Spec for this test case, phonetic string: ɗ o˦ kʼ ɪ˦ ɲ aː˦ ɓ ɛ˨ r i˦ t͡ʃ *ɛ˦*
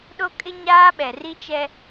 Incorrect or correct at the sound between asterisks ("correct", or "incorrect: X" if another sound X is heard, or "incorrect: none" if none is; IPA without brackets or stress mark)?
correct